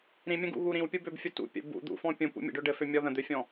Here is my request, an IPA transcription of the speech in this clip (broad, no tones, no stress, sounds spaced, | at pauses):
ɾ ĩ mʲ ə̃ ɡ ṵ ɣ u ɾ ĩ w pʲ u b ø b fʲ u t ṵ pʲ ə̰ b ṵ d̪ ṵ f ɔ̃ pʲ ũ p ṵ mʲ ə̰ ɖ ø ɖ ɘ f ø mʲ ɔ ð ə̃ d̪ ø fʲ ɔ̃